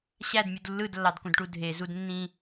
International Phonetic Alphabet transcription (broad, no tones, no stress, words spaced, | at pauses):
ɕædmʲud lːɯdlːɑdkũdʈu dʱezud nːĩ